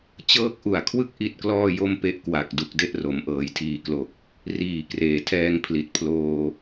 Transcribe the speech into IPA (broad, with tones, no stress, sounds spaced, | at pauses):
t͡ɕ ɤː˦˥ k̚ ʔ u˨˩ a̯ kʰ w ɯ˥˩ k̚ ʔ i˥˩ t̚ k l ɔː˥˩ j o˥˩ m p e˦˥ ʔ k w a˨˩ k̚ d u˨˩ k̚ d e˥˩ ʔ r o˩˦ m ʔ ɤː˩˦ j tʰ iː˨˩ k l o˨˩ k̚ | r iː˨˩ k r eː˨˩ tʰ ɛː˧ ŋ pʰ l i˨˩ t̚ pʰ l oː˧